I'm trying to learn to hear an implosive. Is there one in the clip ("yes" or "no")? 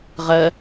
no